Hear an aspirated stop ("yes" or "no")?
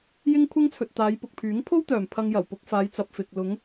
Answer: yes